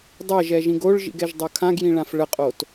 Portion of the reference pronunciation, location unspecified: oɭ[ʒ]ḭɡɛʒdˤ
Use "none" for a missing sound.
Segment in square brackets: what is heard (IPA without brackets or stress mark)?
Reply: ʒ